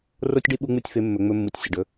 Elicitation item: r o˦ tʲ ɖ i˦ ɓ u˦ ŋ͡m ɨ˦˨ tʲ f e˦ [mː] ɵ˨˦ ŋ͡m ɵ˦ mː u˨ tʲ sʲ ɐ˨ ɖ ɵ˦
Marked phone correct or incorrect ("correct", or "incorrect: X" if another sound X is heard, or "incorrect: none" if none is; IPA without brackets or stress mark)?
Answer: correct